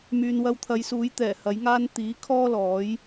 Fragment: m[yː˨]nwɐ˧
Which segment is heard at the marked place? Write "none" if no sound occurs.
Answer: yː˨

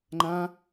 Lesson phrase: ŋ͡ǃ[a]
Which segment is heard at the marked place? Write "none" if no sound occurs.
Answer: ã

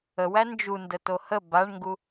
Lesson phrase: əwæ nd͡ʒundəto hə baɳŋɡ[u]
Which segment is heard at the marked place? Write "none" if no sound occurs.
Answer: u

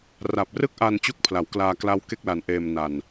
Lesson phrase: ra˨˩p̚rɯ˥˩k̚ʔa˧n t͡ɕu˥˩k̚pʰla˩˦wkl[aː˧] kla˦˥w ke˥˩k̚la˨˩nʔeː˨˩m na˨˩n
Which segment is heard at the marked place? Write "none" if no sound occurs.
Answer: aː˧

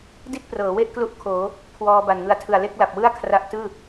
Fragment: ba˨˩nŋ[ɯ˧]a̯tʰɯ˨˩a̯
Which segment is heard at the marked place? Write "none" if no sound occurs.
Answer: ɯ˧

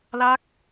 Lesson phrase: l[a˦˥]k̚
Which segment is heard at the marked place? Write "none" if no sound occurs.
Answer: a˦˥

